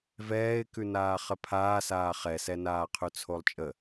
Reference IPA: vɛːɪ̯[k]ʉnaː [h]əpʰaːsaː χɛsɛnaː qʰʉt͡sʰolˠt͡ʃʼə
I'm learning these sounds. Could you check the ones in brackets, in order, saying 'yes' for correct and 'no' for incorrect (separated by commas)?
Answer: yes, no